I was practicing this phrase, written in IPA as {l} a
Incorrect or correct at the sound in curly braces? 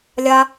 incorrect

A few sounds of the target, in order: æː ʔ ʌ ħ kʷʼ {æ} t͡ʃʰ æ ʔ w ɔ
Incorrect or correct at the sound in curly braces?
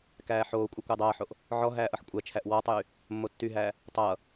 correct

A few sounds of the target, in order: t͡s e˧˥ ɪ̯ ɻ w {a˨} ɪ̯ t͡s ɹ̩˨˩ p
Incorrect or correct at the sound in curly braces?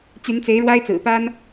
incorrect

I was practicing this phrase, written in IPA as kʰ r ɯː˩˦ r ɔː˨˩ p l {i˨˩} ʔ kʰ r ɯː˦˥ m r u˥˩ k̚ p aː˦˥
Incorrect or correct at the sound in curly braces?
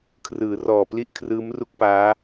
incorrect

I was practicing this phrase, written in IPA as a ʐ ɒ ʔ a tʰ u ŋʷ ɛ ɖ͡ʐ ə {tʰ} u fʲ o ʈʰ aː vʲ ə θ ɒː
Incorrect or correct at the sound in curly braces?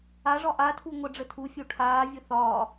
correct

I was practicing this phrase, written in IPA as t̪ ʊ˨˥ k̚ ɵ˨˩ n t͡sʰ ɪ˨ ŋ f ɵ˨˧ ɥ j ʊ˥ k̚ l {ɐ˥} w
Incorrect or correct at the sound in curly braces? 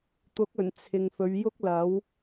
incorrect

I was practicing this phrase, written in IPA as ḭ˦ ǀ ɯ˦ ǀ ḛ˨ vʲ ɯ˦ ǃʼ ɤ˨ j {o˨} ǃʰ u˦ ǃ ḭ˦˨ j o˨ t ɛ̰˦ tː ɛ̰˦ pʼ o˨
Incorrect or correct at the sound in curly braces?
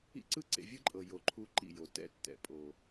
correct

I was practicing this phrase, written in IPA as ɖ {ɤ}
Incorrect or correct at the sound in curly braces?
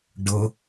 correct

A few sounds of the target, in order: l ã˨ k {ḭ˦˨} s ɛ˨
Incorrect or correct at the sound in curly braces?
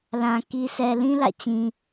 incorrect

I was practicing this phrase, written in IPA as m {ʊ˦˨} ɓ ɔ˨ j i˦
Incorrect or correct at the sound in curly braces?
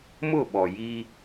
correct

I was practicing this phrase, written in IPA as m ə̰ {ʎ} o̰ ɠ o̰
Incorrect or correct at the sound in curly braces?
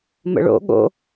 incorrect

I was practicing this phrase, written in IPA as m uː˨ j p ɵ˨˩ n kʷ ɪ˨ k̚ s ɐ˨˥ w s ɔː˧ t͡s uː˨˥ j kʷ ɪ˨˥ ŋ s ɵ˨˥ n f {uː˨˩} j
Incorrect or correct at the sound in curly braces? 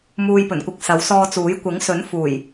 correct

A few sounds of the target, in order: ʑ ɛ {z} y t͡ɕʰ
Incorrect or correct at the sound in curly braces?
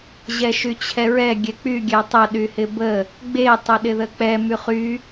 incorrect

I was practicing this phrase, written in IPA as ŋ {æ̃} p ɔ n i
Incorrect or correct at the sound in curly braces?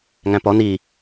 correct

